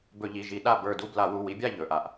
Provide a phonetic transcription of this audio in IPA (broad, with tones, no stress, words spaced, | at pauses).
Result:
bɵ˧˩˧ʎi˩˧˩ʒi˧˩˧ ɗa˥˨ bə˞˧˩du˥˨ bla˧˩˧wu˩˧˩wi˨˦bʲa˥˨ ʎɵ˩˧˩ʔa˧˩˧ʔ